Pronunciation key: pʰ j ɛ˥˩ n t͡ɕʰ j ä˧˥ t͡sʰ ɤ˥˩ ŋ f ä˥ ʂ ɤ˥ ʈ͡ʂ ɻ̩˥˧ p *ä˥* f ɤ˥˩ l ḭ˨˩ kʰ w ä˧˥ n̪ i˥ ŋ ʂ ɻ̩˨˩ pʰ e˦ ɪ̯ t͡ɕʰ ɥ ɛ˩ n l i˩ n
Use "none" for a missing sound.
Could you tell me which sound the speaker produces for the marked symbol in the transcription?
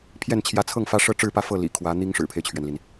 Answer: ä˥˧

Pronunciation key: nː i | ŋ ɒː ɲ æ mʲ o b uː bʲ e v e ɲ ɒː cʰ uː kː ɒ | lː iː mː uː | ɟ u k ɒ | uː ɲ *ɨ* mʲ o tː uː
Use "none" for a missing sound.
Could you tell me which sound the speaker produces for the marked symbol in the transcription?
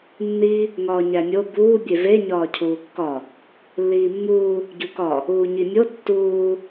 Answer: i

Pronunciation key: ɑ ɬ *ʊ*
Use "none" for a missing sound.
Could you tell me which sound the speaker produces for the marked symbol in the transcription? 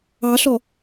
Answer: ɔ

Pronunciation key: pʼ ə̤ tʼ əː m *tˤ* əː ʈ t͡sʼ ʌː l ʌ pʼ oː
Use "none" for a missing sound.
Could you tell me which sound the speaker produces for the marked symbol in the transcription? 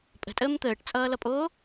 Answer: t̪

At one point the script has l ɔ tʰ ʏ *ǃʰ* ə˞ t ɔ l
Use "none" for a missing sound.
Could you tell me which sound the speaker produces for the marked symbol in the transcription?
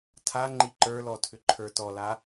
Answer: ǃʰ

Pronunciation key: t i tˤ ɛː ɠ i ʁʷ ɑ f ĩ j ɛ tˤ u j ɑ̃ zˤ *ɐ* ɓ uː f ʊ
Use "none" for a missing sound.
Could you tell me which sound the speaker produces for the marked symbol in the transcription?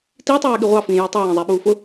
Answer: æ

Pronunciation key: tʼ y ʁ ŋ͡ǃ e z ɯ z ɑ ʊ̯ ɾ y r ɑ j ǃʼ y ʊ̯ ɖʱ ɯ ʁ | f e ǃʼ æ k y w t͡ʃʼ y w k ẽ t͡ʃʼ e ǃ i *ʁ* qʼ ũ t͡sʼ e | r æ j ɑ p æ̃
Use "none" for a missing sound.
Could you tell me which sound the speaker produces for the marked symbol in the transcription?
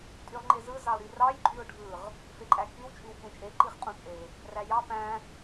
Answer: χ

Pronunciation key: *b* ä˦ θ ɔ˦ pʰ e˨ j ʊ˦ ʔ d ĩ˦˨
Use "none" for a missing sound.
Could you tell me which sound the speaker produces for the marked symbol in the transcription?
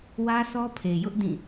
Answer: w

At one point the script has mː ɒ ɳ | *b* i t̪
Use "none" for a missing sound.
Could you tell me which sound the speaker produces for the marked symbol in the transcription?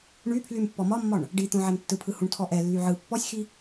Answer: ɖ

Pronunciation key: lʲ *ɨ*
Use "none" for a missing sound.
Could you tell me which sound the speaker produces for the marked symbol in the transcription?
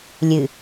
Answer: ɨ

